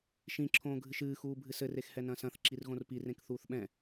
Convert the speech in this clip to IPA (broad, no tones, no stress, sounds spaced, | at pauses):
ʃ ĩ ǁʰ õː ɡʱ ɨ ʃ ɨː x uː bʱ ɨ s ɘ r e x h ɛ n ɐ̃ s ɐ̃ θ ǁ i r ɣ õ r p i r ẽ k θ uː θ ɓ ɛ̃